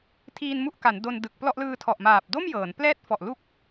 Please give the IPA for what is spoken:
tʰ iː˧ n m u˥˩ ʔ k a˩˦ n d o˧ n d ɯ˨˩ k̚ p l ɔ˥˩ ʔ l ɯː˧ tʰ ɔ˨˩ ʔ m aː˨˩ p̚ d o˥˩ m j ɤː˩˦ n p l ɛː˦˥ t̚ f ɔ˨˩ ʔ l u˦˥ k̚

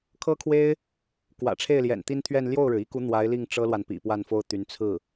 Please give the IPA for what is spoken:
kʰ ɤ˥ kʰ w e˥ ɪ̯ | k w ä̰˨˩ ʈ͡ʂʰ e˥˩ ɪ̯ l j ɛ̰˨˩ n t̪ i˥ n t̪ʰ ɥ ɛ˥˧ n l j o˥˩ ʊ̯ ɻ ɻ̩˩ i˥ k u˧˥ n̪ w a˧˥ ɪ̯ l i˥˩ ŋ ʈ͡ʂ ɤ˥ l w a˨ n p ḭ˨˩ p w a˥˩ n f o˥ ʊ̯ t̪ y˧˥ n t͡sʰ ɹ̩˥˩

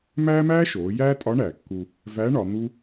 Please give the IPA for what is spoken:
m æː˥ m æː˥ ʃ oː˩˧ j æː˥ tʼ ɒ˧˥ ɳ æː˩ kː u˧ | v æ˧˥ ɳ ɒ˩˧ n̪ u˥

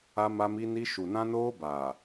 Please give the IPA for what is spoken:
a˦ m a˦ m i˦ n i˦ ʃ u˨ n ã˦ n oː˦ b aː˨

